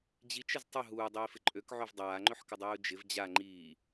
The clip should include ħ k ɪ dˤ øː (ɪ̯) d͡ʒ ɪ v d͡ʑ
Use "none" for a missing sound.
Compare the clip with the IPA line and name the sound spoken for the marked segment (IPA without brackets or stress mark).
ʊ̯